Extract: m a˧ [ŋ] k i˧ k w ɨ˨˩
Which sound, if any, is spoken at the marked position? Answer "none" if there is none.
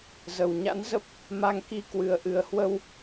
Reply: ŋ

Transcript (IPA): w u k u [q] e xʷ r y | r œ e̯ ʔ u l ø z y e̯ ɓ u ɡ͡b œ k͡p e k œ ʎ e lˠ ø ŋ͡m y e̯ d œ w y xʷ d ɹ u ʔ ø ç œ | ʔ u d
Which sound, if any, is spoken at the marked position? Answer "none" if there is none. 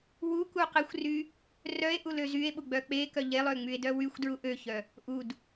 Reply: q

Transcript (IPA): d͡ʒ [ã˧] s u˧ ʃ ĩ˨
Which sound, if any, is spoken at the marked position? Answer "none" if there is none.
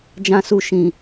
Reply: ã˧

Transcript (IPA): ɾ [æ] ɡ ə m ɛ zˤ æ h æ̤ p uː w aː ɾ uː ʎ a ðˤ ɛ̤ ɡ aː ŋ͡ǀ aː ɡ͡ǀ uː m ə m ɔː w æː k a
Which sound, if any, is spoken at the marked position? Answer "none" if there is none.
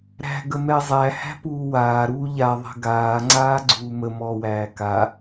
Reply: æ̤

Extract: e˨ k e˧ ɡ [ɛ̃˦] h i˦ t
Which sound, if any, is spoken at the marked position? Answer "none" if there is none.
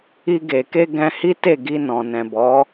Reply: ɛ̃˧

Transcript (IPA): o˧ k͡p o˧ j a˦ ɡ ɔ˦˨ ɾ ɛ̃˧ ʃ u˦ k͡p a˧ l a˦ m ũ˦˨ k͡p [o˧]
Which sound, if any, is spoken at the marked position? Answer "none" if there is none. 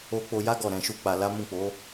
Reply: o˨˦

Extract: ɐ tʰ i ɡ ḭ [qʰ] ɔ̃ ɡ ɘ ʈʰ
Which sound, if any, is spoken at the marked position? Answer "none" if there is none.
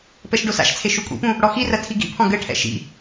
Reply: pʰ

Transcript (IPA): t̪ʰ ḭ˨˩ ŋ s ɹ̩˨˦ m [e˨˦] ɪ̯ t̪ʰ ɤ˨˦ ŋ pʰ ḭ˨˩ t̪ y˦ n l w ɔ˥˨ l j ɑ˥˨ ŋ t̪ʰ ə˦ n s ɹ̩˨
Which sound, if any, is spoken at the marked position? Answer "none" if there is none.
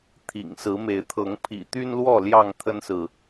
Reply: e˨˦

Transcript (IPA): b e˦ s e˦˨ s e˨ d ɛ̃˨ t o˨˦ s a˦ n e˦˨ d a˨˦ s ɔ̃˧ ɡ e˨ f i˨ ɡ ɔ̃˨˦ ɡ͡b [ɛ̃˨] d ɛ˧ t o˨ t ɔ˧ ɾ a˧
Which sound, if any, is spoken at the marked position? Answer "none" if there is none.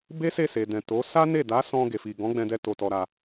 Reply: ɛ̃˧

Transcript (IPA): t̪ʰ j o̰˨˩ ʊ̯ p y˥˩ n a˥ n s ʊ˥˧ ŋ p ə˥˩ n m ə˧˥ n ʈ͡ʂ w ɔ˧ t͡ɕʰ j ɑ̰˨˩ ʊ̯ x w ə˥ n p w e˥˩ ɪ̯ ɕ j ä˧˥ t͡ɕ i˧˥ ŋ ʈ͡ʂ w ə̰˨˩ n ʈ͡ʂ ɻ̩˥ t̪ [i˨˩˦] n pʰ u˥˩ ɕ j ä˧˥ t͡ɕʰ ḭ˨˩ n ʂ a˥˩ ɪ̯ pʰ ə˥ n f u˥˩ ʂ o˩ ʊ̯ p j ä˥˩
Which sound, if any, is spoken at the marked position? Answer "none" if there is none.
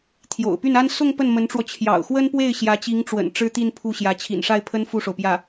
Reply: i˥˧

